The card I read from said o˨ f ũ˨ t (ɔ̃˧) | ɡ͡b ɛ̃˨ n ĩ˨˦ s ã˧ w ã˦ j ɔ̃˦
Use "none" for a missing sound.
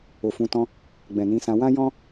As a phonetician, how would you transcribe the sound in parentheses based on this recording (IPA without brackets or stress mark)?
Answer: ɔ̃˧